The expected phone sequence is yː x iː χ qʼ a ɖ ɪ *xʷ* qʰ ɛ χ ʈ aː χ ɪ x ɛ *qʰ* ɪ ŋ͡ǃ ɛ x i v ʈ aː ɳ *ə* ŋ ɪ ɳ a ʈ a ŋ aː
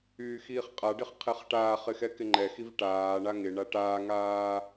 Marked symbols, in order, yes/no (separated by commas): no, no, no